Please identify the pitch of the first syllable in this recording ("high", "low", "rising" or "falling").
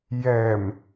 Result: low